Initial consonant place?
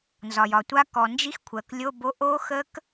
alveolar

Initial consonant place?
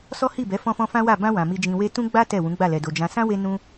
alveolar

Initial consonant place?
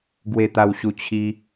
velar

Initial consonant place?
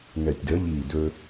velar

